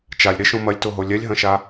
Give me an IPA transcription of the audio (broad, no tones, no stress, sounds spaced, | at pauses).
t͡ʃ a lʲ ɾ e ʃ õ m ɐ lʲ t o ɦ o lʲ ɛ lʲ ɦ ɐ̃ ʃ a